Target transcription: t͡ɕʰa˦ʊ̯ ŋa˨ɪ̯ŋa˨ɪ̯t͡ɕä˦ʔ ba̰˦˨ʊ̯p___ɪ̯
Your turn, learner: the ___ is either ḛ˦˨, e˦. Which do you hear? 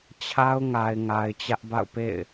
ḛ˦˨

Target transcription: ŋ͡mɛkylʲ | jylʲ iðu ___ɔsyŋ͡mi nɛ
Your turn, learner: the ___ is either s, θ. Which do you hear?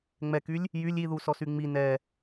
s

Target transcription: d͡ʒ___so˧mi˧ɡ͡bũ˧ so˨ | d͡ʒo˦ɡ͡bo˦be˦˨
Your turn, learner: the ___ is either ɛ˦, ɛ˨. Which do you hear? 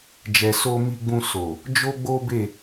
ɛ˨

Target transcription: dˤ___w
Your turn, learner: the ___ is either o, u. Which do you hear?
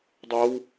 o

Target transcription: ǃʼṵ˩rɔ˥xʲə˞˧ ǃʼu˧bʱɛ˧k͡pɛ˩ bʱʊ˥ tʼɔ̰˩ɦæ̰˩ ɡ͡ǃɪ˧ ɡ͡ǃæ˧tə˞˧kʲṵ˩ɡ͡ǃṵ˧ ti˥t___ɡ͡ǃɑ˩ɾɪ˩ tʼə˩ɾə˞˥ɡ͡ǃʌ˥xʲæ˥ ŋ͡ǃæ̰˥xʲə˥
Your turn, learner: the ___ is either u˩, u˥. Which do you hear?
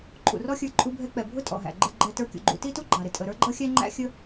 u˥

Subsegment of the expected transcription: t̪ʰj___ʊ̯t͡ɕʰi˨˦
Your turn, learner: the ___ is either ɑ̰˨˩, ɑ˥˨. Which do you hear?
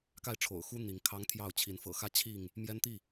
ɑ˥˨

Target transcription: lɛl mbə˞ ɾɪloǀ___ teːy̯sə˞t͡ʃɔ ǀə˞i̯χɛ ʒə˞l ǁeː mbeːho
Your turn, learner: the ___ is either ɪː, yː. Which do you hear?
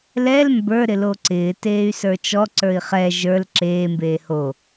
ɪː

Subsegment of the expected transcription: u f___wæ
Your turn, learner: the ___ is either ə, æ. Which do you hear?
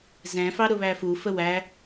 ə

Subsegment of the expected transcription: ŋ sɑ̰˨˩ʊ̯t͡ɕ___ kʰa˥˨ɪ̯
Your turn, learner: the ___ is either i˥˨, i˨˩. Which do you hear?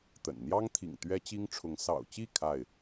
i˥˨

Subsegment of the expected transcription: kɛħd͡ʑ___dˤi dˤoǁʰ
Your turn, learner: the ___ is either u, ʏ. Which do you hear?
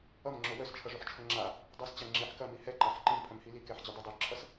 ʏ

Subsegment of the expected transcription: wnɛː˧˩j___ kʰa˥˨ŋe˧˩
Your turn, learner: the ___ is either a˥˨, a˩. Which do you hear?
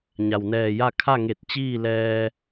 a˥˨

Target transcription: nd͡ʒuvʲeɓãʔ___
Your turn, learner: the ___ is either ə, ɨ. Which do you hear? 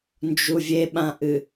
ɨ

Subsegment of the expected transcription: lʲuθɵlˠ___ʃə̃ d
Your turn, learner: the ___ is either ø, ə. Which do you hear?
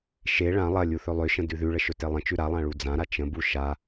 ø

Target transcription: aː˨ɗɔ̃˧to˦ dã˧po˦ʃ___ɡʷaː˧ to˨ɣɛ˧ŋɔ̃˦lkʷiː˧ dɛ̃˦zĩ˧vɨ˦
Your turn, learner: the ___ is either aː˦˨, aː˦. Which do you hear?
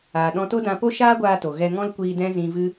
aː˦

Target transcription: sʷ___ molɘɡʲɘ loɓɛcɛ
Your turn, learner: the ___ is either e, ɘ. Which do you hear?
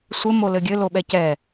ɘ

